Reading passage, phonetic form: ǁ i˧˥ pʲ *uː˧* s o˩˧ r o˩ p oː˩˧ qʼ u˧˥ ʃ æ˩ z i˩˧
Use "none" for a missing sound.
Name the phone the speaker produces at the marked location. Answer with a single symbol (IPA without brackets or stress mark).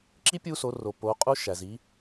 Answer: uː˧